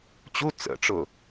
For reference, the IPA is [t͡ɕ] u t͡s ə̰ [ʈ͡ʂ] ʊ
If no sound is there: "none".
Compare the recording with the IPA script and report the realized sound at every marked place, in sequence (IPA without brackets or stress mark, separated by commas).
t͡ɕ, ʈ͡ʂ